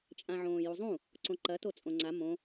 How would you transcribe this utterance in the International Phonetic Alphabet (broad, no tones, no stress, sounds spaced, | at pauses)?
t͡ʃʼ ã ʕ õː j u zˤ ũ | ǀ õ ǃ ɐ t o t͡sʼ õ ŋ͡ǀ a m õ